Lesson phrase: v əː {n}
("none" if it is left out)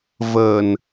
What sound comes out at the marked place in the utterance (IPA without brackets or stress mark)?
n